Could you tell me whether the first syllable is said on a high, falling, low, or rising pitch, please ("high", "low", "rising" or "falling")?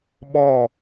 falling